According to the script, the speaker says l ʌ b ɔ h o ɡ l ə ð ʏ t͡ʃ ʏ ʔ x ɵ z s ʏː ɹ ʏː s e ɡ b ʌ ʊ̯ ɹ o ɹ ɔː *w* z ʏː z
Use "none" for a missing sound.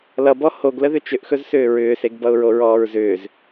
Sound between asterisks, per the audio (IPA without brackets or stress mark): ɹ